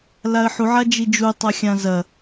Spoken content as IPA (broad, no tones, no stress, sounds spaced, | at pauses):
l a ə̯ ħ u ʕ a d͡ʒ i d͡ʒ u tˤ a xʲ ã z ɐ